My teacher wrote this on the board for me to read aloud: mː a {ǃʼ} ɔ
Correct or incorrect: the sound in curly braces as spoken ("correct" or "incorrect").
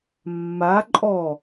correct